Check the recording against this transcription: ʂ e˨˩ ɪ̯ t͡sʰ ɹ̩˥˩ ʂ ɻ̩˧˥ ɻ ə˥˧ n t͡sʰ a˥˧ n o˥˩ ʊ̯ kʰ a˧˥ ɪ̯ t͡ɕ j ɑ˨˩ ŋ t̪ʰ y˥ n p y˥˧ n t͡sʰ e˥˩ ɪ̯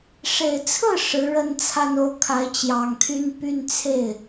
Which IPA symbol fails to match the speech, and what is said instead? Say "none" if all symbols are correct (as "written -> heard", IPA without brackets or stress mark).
none